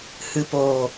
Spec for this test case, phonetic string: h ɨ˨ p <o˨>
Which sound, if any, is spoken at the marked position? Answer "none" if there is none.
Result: oː˨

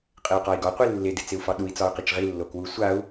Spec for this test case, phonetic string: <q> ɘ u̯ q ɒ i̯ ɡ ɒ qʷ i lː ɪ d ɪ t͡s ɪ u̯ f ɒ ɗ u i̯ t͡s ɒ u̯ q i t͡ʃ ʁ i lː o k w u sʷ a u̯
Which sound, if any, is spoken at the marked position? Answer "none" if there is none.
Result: qʼ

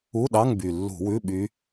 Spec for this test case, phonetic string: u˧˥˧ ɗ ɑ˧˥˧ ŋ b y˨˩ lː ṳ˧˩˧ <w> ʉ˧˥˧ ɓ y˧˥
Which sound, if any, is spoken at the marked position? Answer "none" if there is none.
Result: w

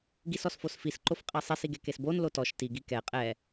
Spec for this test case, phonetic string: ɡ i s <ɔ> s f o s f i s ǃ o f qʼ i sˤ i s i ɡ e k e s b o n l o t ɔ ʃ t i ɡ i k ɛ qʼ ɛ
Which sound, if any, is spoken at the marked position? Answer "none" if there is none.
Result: ɔ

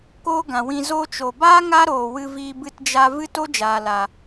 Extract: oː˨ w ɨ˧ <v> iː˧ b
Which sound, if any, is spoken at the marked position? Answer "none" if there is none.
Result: v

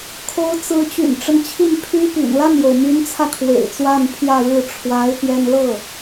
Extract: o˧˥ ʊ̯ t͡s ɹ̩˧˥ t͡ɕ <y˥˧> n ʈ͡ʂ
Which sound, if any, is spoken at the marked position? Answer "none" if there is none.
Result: y̰˨˩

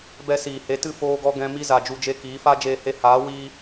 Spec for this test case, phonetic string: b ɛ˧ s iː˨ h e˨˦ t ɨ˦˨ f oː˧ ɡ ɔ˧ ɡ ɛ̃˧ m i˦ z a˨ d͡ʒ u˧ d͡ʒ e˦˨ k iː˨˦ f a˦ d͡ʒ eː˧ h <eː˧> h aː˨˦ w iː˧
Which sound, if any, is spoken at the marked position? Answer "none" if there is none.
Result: e˧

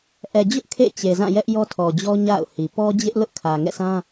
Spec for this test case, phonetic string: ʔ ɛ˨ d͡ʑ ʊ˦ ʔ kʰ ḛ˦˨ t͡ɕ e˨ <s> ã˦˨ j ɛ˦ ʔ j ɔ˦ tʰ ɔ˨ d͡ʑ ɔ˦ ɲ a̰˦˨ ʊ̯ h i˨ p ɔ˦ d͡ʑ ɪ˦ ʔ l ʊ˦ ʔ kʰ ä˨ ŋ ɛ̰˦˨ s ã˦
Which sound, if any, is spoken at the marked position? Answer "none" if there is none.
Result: z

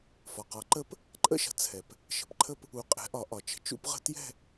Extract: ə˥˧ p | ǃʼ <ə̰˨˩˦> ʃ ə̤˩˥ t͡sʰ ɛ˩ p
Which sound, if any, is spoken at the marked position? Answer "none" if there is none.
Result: ə̰˥˧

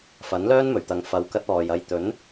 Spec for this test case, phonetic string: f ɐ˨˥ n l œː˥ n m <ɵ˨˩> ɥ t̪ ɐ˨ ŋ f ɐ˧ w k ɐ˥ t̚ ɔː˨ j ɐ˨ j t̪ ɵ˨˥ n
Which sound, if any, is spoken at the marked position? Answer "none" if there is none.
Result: ɵ˨˩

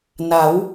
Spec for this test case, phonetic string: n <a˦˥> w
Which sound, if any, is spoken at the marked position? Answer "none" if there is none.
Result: a˩˦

